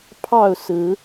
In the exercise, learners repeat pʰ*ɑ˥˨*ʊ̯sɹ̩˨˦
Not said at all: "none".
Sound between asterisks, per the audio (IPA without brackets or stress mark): ɑ˥˨